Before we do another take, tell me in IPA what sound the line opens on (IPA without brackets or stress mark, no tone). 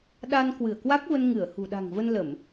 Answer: ɗ